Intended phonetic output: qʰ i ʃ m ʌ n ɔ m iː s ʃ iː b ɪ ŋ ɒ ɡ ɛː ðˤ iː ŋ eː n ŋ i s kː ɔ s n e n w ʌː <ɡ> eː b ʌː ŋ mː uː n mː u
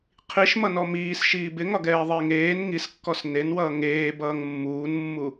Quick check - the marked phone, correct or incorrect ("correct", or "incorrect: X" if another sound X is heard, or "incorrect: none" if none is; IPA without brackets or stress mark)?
incorrect: ŋ